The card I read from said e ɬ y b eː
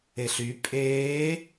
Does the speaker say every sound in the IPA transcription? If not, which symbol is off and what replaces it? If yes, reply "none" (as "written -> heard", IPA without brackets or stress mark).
b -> pʼ